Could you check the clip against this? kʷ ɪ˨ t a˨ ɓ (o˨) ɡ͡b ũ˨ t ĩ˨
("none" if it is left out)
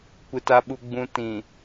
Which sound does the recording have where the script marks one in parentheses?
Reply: u˨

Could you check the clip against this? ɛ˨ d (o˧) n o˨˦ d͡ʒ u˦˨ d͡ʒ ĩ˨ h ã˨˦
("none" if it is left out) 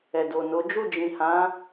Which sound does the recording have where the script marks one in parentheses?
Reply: o˨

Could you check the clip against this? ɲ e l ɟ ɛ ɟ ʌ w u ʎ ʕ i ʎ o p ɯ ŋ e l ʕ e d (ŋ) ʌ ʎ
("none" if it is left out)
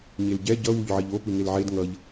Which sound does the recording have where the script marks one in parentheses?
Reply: ŋ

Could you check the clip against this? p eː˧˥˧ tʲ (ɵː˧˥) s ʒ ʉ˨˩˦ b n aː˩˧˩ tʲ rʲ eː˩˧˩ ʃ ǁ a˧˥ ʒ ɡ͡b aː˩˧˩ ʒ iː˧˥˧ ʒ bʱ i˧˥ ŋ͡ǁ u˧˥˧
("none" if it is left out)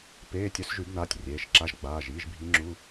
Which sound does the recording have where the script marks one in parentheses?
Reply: ɵ˧˥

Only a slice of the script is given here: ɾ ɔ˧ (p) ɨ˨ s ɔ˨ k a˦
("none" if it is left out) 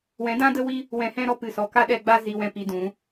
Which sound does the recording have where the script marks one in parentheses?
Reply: p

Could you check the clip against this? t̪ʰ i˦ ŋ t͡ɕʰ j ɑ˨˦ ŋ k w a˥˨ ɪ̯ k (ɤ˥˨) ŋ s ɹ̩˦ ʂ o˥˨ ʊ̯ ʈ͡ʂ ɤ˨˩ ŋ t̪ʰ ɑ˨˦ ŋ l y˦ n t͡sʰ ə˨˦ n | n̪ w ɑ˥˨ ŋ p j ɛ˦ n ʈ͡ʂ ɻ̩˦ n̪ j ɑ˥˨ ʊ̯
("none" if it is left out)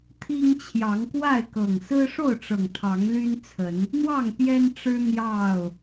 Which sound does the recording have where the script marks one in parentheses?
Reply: ɤ˨˩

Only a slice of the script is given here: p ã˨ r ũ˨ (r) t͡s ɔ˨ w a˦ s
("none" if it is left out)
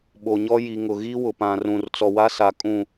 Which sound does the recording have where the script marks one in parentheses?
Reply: r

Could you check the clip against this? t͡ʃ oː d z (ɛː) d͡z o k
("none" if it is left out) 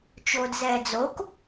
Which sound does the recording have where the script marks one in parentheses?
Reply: ɛː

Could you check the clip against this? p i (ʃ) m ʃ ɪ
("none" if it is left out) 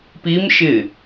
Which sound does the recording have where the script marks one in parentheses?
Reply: none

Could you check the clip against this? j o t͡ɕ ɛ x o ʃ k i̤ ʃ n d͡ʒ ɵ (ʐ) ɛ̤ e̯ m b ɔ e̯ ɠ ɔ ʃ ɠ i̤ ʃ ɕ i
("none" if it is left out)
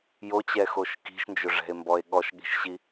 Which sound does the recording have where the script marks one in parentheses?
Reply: ʐ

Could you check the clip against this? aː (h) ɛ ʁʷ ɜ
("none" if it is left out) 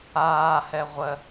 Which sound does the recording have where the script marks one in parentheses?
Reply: h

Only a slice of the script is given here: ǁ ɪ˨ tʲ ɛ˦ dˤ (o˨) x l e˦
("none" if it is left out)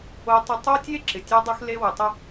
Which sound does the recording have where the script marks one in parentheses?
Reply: o˦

